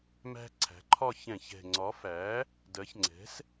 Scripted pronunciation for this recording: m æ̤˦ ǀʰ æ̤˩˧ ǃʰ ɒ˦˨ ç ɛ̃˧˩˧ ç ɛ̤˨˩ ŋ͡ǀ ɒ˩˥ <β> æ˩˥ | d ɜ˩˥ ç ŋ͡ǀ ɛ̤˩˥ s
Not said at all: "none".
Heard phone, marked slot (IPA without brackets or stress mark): f